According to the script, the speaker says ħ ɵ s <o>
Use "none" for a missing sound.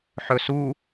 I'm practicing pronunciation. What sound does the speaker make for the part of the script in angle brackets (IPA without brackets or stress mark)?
u